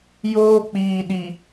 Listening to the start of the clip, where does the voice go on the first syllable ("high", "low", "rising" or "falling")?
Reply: high